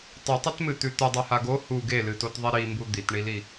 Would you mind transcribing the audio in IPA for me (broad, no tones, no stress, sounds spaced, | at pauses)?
tˤ ɨ tˤ ɐ t m ɨ t̪ ʉ t̪ ɨ dˤ ʉ h a ɡ o h u ɡ e l ɨ t o t ðˤ i ɾ i m b u d̪ i t ɳ i l i